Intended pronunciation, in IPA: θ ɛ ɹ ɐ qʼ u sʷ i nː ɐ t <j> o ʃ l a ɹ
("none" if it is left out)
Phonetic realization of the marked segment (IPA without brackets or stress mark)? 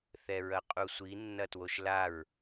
w